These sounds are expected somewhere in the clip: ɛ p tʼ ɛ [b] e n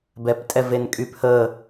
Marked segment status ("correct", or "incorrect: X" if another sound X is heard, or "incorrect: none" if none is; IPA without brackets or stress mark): incorrect: v